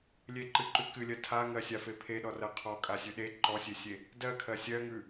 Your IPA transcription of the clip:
lʲeǃɨǃʉ kɨlʲɜ tʰaŋɜsʲafe pʰeɗɔrɜ qʰɔkʼasʲʉ ɗe ǃɔsʲesʲe | dɜkʰɜ sʲɜŋʉ

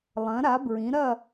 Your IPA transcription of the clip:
lˠɐ̃˨˦ɾa˨˦bɹĩ˨˦ɾɐ˥˧

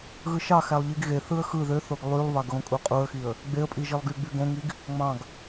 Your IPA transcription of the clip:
ɣɯʃɑxælˠ ʎiɡɣeθɯə̯ xɯ ðøθoɡ lˠylˠβɑɡ ɣõkʼuqʼuə̯xiə̯ | ɡ͡beə̯pʼi ʒilˠɡyɡ͡by ɡõŋiɡ | ŋ͡mɑ̃ɡ

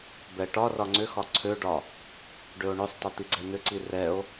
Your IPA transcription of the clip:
bɛʈɒrɒ ŋ͡ǀʏxɒ ǀʰøɖɒ | ɖøo̯ɳʏsˤtˤø t̪iɡ͡ǀɛn̪ʏǀi rɛo̯

